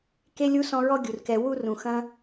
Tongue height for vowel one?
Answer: mid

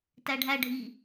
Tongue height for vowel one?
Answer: low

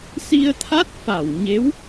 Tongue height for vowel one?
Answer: high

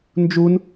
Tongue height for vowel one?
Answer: high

